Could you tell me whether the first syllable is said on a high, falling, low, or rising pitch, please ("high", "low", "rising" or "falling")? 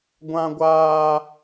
high